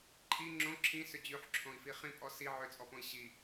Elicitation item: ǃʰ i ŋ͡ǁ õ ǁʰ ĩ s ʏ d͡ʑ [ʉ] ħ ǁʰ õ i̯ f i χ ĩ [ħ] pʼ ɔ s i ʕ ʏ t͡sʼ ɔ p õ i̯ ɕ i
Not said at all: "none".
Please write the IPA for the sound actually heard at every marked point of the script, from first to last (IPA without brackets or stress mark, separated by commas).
ʉ, none